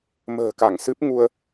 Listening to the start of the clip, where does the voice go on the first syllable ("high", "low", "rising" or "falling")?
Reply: low